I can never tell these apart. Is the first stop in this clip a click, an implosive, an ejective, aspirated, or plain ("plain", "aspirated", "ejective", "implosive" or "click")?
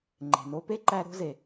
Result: click